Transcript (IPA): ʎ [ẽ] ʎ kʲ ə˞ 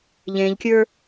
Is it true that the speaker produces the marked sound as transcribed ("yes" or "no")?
yes